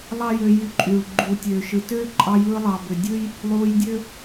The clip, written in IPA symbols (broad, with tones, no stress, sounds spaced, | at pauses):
lˠ ɑ˦ j ø˧ j y˧ ǃʼ yː˨ ɭ ɡ͡ǃ uː˨ tʲ øː˨ ʃ ɯ˨ t øː˦ ǃʼ ɑ˧ j ɯː˧ lˠ ɑ˨ b ø˨ dʲ ɯ˦ j | lˠ uː˧ j dʲ ø˦